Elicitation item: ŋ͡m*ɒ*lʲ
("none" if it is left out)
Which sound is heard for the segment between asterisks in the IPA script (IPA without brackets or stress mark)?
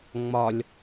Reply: ɒ